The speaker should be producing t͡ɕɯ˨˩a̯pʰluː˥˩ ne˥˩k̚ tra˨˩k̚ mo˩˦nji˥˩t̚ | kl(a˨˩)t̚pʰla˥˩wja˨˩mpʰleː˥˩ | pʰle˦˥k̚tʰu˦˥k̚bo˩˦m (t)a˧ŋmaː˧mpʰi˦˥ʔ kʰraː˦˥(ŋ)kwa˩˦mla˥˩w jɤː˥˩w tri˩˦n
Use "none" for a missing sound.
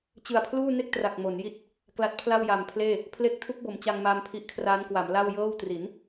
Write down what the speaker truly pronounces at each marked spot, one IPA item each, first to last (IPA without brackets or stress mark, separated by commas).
a˦˥, t͡ɕ, n